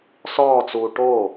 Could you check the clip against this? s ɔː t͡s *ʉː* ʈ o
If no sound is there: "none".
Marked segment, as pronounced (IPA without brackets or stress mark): uː